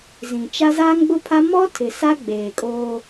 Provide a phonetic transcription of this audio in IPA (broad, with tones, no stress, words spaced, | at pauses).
zĩ˨t͡ʃa˦ zaː˦ŋɡ͡bʊ˦pʰa˦ mɔ˦ tʰɪ˨sa˦ ɡ͡beː˨kʼoː˦